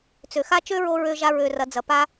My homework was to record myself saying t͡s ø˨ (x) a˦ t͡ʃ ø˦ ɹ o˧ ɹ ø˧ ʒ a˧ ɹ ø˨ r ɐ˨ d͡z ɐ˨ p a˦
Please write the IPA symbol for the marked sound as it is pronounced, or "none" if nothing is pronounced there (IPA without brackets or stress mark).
x